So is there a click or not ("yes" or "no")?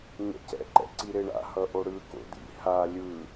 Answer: yes